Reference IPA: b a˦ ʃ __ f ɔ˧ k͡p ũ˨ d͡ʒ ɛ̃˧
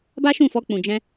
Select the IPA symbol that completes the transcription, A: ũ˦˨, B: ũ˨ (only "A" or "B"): A